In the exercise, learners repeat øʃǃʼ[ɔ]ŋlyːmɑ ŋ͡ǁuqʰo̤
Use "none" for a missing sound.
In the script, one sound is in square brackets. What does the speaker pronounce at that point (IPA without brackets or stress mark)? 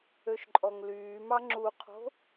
ɔ